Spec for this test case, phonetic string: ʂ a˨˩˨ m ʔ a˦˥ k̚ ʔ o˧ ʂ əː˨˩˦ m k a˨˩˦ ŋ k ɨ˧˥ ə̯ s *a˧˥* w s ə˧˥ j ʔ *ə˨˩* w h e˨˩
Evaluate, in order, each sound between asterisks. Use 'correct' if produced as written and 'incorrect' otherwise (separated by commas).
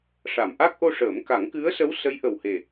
incorrect, correct